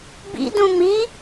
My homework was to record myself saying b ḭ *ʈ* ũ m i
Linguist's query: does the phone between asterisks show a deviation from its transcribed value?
yes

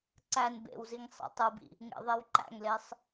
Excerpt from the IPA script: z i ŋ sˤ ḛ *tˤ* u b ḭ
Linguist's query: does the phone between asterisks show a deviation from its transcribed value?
no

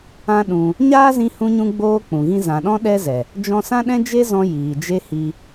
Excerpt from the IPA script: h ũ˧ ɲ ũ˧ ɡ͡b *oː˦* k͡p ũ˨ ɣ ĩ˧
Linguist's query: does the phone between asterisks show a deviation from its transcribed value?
no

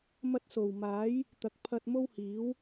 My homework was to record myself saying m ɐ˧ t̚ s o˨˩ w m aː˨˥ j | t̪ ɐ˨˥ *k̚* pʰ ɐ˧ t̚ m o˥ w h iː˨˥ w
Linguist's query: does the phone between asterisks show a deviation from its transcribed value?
no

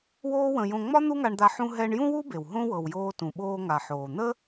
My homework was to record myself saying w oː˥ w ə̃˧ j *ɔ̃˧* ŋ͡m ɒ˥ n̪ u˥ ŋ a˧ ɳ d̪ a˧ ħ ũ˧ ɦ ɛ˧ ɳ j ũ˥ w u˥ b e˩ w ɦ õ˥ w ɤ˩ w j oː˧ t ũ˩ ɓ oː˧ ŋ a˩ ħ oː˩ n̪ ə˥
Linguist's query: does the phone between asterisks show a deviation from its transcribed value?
yes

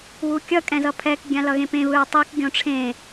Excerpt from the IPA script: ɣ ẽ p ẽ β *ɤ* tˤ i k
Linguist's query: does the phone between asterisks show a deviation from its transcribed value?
yes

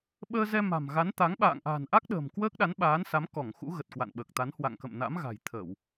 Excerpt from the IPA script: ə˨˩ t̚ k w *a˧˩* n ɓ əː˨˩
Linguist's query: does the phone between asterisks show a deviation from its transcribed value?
yes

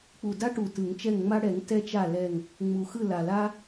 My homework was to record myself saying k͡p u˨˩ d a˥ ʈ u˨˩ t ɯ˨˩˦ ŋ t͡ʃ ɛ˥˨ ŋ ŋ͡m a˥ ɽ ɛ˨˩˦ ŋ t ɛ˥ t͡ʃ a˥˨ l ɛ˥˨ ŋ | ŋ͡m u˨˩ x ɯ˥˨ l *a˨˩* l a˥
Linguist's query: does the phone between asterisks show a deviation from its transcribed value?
no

